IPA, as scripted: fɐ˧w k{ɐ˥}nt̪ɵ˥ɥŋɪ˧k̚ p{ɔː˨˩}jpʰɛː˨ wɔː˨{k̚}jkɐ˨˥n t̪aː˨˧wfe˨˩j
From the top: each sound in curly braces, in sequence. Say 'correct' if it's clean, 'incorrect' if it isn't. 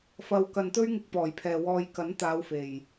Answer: incorrect, correct, incorrect

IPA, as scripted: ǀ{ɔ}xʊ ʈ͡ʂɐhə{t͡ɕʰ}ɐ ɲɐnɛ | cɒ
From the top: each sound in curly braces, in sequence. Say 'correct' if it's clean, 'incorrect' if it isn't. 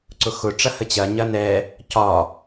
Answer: incorrect, incorrect

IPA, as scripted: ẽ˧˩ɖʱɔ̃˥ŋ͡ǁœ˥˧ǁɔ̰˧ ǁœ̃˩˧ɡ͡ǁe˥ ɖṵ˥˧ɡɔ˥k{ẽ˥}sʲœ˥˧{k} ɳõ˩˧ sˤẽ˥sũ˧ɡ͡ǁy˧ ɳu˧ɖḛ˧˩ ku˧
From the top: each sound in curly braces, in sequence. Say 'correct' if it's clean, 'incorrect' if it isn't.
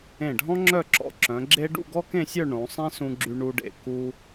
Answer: incorrect, incorrect

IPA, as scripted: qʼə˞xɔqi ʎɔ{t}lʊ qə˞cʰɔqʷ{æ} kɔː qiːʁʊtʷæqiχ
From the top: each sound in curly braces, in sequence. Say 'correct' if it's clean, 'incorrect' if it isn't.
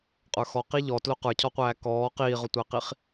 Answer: correct, incorrect

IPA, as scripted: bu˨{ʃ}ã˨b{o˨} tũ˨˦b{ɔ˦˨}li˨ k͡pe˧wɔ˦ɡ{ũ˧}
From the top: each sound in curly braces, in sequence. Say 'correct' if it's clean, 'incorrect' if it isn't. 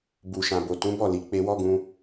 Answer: correct, correct, correct, correct

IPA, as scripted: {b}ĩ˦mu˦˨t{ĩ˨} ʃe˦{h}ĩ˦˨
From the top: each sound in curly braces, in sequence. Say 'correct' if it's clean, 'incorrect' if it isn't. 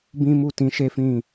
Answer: correct, incorrect, incorrect

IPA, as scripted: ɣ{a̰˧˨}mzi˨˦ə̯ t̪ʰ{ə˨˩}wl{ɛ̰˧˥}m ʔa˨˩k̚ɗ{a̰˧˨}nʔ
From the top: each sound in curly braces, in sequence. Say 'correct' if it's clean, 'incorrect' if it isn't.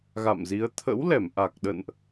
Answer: correct, incorrect, incorrect, incorrect

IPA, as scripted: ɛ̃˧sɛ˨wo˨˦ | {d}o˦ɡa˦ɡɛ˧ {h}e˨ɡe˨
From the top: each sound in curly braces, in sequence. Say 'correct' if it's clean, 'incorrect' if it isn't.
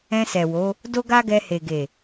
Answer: correct, correct

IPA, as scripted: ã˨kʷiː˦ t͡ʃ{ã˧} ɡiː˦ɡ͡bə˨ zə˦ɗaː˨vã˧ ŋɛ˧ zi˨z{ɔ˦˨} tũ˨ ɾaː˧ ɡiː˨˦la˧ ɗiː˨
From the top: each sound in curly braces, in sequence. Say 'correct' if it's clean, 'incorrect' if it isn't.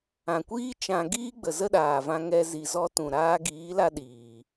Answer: correct, incorrect

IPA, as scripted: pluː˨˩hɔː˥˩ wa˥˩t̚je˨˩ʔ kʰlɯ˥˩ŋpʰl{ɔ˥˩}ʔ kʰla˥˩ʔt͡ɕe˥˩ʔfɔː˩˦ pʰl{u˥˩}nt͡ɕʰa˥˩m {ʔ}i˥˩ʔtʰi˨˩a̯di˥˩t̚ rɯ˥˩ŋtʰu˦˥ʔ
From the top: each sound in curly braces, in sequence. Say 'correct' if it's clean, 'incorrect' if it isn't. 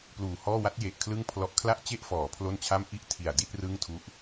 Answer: incorrect, incorrect, correct

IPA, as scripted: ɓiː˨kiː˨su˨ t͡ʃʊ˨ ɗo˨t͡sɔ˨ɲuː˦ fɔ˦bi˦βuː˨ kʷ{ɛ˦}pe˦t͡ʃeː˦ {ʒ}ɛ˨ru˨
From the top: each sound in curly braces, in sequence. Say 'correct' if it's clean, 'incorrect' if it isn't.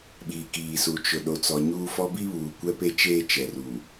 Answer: correct, incorrect

